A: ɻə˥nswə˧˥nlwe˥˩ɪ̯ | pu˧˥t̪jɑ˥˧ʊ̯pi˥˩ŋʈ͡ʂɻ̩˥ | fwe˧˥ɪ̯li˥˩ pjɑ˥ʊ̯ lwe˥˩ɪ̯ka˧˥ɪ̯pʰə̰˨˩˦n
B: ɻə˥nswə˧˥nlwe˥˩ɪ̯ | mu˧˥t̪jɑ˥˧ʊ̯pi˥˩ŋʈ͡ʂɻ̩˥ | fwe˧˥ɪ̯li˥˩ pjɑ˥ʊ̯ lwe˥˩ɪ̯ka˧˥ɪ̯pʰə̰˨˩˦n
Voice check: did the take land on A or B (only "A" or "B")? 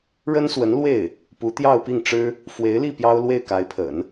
A